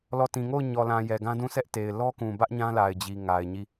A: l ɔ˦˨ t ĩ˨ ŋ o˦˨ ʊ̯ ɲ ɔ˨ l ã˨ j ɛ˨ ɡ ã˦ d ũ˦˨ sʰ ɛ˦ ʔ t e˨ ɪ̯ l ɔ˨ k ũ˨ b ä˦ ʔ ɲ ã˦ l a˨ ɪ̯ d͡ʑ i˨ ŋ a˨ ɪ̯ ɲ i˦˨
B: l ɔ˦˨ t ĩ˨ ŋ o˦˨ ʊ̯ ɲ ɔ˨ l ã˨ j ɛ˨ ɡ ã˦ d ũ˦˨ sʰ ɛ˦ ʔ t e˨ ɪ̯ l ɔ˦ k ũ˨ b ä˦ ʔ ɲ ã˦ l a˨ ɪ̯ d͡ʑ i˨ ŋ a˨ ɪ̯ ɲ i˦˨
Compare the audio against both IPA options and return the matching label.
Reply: B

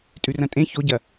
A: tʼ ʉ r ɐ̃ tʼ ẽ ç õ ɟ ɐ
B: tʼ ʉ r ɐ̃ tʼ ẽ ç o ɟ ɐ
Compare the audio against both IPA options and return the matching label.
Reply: B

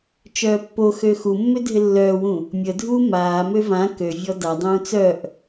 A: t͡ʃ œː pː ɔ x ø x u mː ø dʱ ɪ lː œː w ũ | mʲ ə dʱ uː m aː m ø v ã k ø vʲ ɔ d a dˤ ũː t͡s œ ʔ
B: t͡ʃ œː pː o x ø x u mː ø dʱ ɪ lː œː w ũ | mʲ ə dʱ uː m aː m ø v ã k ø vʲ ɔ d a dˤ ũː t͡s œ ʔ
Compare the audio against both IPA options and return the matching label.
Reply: B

